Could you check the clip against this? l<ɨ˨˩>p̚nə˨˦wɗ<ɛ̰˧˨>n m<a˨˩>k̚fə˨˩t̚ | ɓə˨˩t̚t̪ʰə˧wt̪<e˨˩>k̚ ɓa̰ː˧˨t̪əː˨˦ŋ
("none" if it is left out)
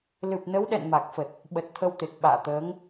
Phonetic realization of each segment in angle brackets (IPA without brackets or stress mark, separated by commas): ɨ˨˩, ɛ̰˧˨, a˨˩, e˨˩